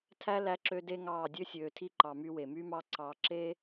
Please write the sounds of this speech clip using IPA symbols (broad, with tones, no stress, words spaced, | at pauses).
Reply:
tʰæ˦læ˧ǁø˧ de˦ŋɑː˦˨ dʲø˧sʲøː˨tʰi˧ǃɑ˨ my˧we˨my˦mɑ˦ ǀɑː˧ ǁe˦